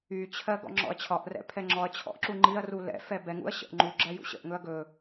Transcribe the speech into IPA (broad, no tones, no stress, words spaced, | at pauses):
yt͡ɕʰɜ ɡɔ̰ŋ͡ǁɔ̰ɐ̯t͡ɕʰɒʔrɛ̰ pʰɛŋ͡ǁɔɐ̯t͡ɕʰɔ̰ʔ ǁuŋ͡ǃiɐ̯ru lɛ̰fɛ bɛŋṵɐ̯ ɕə̰ʔ ŋ͡ǃu ɡ͡ǁɜjṵɕə̰ʔŋɵɐ̯ ɡɵ